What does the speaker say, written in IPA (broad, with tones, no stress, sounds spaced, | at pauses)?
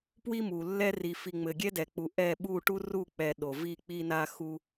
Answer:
p w i˦ m u˨ lː ɛ˦ r i˨ f i˨ ŋ͡m ɘ˨ ɡʲ ɛ˦ d ɛ˨ k͡p u˨ ʔ ɛ˦˨ ɓ u˦˨ ʈ u˦ r u˦˨ k͡p ɛ˨ ɗ o˨ v i˦˨ k͡p i˦ n a˦ x u˦